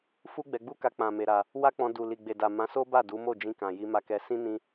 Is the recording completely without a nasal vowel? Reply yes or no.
no